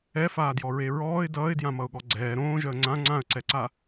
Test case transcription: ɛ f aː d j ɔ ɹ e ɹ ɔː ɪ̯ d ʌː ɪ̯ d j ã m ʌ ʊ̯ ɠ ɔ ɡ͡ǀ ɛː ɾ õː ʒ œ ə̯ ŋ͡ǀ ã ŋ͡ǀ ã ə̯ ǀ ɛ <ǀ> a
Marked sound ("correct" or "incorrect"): correct